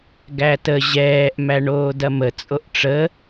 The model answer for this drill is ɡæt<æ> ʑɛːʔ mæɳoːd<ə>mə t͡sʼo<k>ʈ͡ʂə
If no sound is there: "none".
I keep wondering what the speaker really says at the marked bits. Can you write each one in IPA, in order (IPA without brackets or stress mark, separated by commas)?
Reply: ə, ɐ, ʔ